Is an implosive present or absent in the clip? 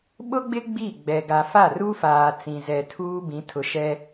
present